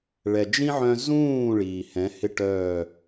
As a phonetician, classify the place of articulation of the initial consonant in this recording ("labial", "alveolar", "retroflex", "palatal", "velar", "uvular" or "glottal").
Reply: retroflex